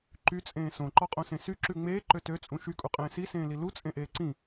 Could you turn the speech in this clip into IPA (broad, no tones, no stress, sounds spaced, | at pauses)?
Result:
ǃ y t͡sʼ ẽː s õ ǃ ɔ qʼ õ s ẽ s y ǁ ʉ ŋ͡m eː ǃ ø t ø t͡sʼ ũ ʃ y kʼ u qʼ ẽː s i s ẽː l i l u t͡sʼ ẽ ʔ eː ǀ ĩ